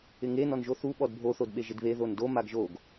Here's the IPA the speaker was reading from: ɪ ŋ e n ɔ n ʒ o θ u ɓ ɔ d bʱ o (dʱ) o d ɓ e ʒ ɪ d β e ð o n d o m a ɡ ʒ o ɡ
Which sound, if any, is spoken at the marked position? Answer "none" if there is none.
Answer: θ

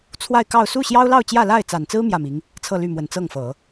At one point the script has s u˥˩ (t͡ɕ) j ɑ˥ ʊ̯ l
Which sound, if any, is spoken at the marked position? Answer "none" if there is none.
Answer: ɕ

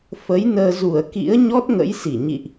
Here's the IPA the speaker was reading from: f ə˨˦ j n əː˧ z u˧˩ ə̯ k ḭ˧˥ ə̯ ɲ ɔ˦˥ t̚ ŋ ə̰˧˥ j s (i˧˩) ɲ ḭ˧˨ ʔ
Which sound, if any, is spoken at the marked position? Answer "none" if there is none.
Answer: i˧˩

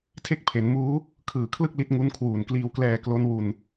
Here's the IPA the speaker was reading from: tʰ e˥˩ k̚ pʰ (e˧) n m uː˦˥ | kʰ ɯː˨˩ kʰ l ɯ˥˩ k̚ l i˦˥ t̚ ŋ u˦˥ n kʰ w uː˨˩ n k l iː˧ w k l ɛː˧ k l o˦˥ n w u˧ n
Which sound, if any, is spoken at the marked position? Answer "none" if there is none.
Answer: e˩˦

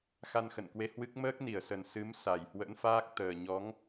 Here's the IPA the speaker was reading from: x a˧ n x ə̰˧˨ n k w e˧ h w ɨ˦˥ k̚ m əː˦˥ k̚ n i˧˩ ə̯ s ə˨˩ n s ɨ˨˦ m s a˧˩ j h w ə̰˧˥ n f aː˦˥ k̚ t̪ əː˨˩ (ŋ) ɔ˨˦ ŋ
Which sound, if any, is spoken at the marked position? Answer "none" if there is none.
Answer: ɲ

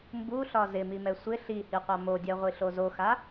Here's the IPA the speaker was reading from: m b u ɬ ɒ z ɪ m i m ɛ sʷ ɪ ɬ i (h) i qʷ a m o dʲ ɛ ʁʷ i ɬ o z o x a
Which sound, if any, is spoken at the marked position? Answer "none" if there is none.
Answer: h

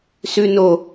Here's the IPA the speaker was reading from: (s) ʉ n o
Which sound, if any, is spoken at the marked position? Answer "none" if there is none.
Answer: s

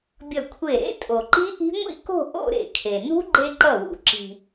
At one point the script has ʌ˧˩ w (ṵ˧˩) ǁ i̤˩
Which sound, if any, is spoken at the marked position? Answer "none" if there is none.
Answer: ṵ˩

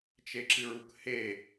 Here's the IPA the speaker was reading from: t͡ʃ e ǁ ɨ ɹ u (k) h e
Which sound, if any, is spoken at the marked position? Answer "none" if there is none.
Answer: k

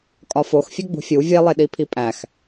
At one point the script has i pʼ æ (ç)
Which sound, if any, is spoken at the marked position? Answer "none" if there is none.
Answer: x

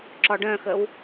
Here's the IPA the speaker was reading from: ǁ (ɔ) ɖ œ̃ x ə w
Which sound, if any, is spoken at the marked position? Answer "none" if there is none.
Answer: ɔ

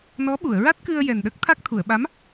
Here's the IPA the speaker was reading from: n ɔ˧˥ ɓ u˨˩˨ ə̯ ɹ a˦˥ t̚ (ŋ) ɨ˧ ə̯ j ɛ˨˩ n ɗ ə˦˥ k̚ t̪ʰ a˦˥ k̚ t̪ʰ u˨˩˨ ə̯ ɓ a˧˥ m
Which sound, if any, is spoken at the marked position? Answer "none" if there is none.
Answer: k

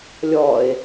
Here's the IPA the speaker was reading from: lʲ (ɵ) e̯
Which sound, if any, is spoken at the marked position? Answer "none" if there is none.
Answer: ɔ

